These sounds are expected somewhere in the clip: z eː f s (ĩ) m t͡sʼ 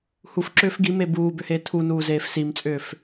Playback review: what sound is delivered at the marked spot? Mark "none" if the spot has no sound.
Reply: i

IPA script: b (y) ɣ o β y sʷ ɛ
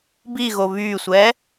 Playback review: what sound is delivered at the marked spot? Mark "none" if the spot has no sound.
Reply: i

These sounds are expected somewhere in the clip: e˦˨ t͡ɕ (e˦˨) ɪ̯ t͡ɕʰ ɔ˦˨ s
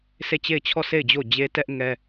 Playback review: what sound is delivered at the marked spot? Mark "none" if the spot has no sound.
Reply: e˦˨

